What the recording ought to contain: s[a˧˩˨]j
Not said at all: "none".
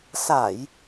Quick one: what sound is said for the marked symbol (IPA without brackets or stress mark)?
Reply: a˧˩˨